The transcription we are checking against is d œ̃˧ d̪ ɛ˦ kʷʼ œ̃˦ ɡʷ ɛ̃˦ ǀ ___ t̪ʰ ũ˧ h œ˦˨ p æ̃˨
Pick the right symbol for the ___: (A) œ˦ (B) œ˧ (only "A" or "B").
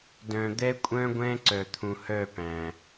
B